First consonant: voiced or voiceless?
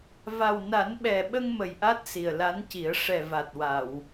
voiced